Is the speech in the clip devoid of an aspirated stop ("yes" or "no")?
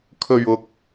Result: no